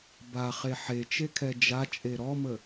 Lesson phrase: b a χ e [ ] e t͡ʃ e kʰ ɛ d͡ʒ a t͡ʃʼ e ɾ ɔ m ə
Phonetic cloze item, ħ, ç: ħ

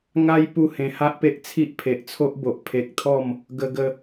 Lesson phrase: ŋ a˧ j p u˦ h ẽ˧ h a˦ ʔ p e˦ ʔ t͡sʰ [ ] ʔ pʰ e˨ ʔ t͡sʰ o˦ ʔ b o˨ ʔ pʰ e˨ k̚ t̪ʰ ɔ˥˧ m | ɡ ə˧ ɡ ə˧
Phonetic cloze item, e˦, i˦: i˦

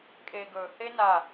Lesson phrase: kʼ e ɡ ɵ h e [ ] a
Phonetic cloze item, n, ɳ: n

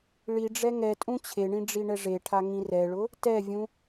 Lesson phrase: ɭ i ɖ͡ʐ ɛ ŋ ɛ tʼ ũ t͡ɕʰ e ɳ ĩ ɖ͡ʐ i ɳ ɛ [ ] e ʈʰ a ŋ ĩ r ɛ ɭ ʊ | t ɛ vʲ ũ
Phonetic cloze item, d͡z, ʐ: ʐ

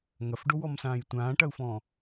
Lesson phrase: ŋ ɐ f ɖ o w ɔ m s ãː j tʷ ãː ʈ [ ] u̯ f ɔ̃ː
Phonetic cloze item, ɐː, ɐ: ɐ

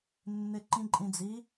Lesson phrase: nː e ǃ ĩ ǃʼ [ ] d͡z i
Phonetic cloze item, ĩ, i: ĩ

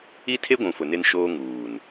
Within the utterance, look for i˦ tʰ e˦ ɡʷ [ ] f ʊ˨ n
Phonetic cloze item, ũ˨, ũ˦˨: ũ˨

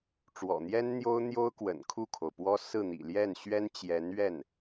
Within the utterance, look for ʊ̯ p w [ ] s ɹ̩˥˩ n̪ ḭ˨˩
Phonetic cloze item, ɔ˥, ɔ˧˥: ɔ˥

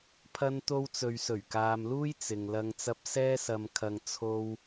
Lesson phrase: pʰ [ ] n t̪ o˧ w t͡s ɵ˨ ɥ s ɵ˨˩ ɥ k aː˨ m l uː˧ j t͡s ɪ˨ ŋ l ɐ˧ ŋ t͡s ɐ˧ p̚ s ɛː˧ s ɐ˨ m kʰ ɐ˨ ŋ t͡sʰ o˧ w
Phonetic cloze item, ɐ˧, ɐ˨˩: ɐ˧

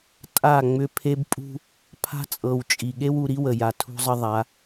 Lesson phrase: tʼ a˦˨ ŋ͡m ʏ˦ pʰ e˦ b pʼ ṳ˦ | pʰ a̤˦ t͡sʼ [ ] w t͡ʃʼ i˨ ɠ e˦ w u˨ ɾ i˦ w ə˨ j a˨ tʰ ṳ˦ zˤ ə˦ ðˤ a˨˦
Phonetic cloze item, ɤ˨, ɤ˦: ɤ˨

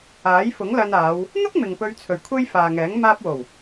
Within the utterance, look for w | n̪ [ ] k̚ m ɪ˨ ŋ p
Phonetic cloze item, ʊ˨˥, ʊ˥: ʊ˥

